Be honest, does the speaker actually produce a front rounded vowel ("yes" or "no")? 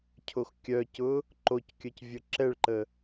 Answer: yes